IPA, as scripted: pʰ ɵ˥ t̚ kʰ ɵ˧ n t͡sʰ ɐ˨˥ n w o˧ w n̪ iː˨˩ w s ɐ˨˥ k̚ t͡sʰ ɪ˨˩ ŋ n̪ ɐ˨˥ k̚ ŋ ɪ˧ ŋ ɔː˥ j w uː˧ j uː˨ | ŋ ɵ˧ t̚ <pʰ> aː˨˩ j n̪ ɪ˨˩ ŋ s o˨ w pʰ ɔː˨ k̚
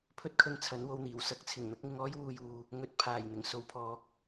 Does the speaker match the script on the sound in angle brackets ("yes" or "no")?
yes